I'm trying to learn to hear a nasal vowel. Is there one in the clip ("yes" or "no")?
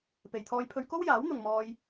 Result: no